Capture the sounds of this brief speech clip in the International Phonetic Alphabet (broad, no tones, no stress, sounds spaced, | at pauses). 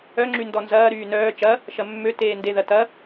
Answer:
œ ŋ͡ǁ y n d ɔ n z ɐː ɾ yː n œː t͡ʃ ɐ | ʃ ɐ mː ø t eː n d e ð ɐ t ɐ